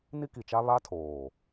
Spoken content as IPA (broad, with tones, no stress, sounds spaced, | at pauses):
n i˦ k i˨ t͡ʃ a˦ β a˦ tʰ oː˨